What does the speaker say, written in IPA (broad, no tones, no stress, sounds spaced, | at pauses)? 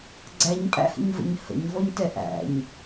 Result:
ɡ͡ǀ æ ɲ pʼ æ̰ h ə̰ ɲ v ə̰ ɲ h ə̰ ɲ v ɔ ɲ t ɛ ʔ æ̰ ɲ